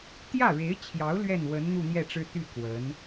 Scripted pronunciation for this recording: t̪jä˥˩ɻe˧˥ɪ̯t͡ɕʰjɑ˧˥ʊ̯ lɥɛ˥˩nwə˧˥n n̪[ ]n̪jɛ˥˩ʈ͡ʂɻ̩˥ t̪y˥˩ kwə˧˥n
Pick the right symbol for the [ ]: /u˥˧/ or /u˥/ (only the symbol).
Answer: u˥˧